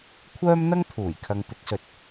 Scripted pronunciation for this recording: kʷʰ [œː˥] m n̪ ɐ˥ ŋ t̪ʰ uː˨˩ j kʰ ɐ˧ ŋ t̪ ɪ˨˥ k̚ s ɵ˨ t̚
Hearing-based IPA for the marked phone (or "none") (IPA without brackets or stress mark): œː˥